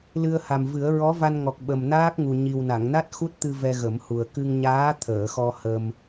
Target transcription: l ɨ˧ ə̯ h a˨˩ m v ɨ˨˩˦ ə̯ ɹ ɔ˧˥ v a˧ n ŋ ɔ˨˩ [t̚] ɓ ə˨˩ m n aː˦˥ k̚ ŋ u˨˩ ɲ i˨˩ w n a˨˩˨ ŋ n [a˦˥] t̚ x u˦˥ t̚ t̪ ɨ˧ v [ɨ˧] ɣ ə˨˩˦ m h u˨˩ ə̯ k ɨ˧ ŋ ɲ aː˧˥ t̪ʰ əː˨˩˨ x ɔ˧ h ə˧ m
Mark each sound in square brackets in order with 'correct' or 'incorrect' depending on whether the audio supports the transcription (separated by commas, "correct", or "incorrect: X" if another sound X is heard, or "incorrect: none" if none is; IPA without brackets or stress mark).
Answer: incorrect: k̚, correct, incorrect: ɛ˧